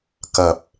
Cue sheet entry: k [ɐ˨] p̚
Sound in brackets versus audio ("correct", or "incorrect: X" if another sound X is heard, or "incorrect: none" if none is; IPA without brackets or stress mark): correct